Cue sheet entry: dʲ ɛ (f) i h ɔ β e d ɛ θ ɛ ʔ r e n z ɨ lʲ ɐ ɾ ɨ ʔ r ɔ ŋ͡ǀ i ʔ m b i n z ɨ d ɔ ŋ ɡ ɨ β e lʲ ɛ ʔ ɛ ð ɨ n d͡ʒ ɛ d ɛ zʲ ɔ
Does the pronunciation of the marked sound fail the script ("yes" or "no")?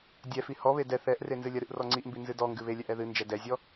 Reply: no